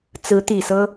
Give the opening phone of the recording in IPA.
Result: t͡s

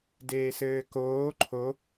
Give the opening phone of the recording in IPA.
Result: d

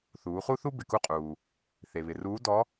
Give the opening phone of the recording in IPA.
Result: θ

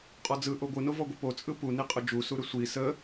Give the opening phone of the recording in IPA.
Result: qʼ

